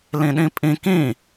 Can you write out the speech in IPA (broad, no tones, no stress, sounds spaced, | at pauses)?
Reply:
l ĩ ɗ ĩ pʼ ĩ k ĩ